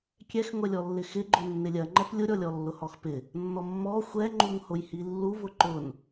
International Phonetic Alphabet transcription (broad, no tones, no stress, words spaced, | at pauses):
kʲɛxŋʷɛlʲɔlːɪ xɪɡ͡ǃʊ nːɪlʲɜŋ͡ǃɛp lʲʊɾʲɔlʲɔlːʊ hɔxpɪ | nːɔmːɔ xʷɛŋ͡ǃuŋ hʊjhilːu vʊǃʊn